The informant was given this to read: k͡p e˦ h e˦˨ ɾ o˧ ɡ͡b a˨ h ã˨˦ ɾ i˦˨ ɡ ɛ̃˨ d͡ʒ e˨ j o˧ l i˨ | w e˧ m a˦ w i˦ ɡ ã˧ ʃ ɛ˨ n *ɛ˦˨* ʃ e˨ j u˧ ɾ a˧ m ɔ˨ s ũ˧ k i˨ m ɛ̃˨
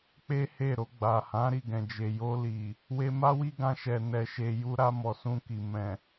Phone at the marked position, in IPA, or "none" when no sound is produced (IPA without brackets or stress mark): ɛ˨